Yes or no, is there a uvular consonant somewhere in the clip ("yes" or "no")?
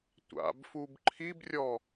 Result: no